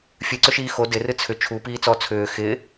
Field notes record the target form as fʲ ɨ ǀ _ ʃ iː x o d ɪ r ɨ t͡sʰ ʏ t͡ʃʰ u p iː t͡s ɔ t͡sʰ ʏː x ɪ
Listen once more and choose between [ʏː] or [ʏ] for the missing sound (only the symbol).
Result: ʏ